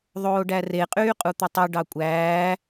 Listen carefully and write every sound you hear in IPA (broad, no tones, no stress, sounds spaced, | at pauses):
ðˤ oː ɖ æ r e qʼ yː qʼ u t̪ ɯ tˤ ɯ ɖ ɑ kʷʼ æː